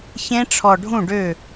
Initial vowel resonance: nasal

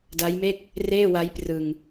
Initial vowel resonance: oral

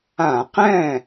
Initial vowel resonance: nasal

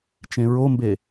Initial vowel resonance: nasal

